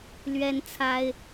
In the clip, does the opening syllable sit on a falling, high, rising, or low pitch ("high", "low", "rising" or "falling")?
high